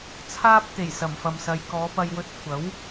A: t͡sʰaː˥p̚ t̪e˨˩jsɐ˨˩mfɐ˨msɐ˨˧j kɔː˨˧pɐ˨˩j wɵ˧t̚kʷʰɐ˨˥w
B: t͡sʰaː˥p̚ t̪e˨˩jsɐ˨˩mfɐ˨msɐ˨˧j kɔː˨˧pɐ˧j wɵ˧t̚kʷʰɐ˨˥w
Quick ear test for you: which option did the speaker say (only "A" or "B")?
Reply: B